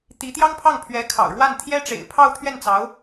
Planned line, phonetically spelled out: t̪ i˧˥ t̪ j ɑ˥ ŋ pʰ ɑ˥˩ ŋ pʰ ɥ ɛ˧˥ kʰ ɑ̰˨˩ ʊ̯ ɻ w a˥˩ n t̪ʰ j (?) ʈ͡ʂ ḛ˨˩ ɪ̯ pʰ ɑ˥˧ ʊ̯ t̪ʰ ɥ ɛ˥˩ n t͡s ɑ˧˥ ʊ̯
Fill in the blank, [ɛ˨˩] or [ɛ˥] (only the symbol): ɛ˥